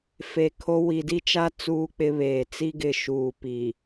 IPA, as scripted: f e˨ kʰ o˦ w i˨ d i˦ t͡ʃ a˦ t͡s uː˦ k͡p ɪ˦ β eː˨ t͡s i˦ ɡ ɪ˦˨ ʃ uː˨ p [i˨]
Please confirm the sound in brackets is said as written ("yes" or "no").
yes